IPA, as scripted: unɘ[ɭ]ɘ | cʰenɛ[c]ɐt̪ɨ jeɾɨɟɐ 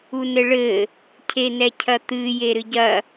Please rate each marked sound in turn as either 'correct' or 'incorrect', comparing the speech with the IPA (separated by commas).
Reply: correct, incorrect